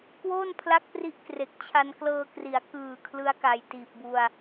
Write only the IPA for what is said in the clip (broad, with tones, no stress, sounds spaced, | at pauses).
k w oː˥˩ n pʰ l a˥˩ k̚ p r i˥˩ ʔ k r e˨˩ k̚ t͡ɕʰ a˧ n k l ɤː˧ k r i˩˦ a̯ k ɯː˨˩ kʰ l ɯ˦˥ a̯ k a˨˩ j t iː˨˩ p̚ b u˧ a̯